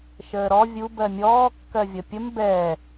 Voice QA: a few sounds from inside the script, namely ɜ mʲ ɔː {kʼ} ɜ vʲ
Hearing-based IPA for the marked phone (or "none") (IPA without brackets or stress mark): kː